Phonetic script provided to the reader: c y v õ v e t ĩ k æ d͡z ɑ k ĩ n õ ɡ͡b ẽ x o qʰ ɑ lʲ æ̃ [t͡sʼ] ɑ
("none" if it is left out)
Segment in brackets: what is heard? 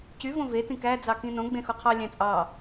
t͡sʼ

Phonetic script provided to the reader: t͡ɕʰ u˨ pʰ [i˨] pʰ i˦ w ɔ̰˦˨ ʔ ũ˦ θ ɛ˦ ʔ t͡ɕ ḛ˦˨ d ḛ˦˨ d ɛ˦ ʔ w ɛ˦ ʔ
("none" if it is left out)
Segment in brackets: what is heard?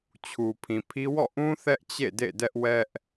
ĩ˨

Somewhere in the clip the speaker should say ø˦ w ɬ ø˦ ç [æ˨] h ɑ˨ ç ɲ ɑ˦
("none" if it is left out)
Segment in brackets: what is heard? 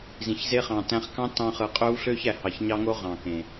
æ˨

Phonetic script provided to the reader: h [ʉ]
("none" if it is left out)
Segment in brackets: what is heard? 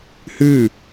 ʉ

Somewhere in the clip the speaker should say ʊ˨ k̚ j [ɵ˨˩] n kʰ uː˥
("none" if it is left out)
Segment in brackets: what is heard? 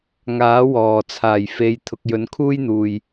ɵ˨˥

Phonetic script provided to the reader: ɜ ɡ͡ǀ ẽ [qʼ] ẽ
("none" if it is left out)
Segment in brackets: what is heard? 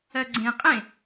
qʼ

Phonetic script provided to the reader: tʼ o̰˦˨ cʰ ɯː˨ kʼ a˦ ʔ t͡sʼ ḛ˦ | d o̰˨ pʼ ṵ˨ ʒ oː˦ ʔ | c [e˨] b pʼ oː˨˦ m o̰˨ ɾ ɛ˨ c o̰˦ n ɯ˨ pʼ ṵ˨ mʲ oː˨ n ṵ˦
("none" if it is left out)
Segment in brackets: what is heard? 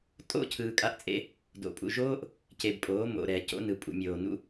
e˨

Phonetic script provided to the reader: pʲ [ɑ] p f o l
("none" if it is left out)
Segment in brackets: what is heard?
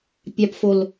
ɑ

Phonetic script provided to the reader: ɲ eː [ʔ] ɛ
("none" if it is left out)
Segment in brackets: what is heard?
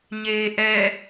ʔ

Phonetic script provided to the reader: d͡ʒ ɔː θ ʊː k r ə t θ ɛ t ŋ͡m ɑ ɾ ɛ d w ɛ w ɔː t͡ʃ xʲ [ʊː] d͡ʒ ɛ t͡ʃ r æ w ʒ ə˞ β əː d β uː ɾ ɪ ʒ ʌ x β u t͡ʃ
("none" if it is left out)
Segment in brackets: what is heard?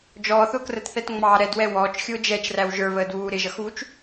ʊː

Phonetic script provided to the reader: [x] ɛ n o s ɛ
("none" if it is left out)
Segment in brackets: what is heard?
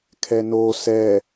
kʰ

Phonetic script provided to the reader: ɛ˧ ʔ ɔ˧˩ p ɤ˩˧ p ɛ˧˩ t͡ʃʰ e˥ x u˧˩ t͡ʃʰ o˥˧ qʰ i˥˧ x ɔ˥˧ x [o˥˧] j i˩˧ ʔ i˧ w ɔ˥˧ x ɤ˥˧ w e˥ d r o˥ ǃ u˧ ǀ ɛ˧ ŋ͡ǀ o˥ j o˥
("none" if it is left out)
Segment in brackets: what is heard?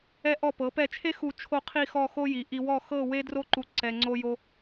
o˥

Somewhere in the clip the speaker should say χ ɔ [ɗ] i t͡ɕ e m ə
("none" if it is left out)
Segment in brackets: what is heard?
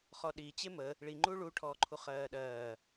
ɗ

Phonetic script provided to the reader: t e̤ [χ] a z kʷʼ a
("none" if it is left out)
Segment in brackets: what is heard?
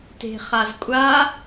χ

